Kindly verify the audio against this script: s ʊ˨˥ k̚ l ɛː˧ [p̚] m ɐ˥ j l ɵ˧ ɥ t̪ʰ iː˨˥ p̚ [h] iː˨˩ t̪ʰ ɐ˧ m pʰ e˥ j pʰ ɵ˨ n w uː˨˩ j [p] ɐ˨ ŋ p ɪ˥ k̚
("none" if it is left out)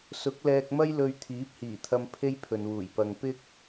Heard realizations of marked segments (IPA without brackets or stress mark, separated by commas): k̚, h, p